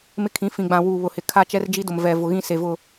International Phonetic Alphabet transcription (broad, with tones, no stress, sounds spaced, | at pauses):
m ɪ˦ kʰ ĩ˨˦ f ĩ˨ ɡ͡b ã˨ w uː˨ β ʊ˨ h ɪ˨ kʰ a˦˨ t͡ʃ ɛ˦ r d͡ʒ i˦ d ʊ˨ m v ɛ˨ v ʊ˨ ɣ ĩ˦ s e˨ v ʊ˦˨